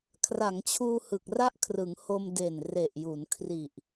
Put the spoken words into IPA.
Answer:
kʰ r a˩˦ ŋ t͡ɕʰ uː˧ h ɯ˨˩ k̚ r a˥˩ ʔ kʰ r ɯ˩˦ ŋ h o˧ m d e˨˩ n r e˨˩ ʔ j u˩˦ n kʰ r i˨˩ ʔ

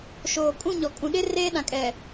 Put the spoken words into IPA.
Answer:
ʃ oː˨ kʼ ũ˦˨ ɲ ɔ˨ kʼ ũ˨ ɗ ɪ˦ r eː˦ ɗ ã˨ kʼ ɛ˨

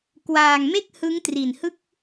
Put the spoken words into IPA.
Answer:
k w aː˧ ŋ m e˥˩ k̚ h ɯ˦˥ ŋ t r i˨˩ n h ɯ˥˩ k̚

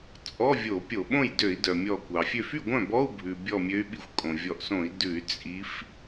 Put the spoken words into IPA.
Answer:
t͡sʼ ɔ˧˥˧ vʲ o˧˩˧ pʲ o˧˩˧ ɓ õ˥˩ j d ø˧˩˧ i̯ d œ˩ mʲ ɔ˧˩ kʷ ɑ˩ fʲ ø˥˩ f y˥˩ ɡʷ œ̃˥˩ b ɔ˧˥˧ u̯ bʱ ʉ˩ bʲ ɔ˧˩ mʲ ø˨˦ y̯ ɓ i˧˩ xʷ kʼ õ˩ vʲ ɔ˧˩ ʔ s õ˧˩˧ i̯ d ʉ˧˩˧ y̯ t͡sʼ i˨˦ f

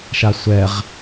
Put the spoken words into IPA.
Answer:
ʃ a sʷ ɛ ʁ

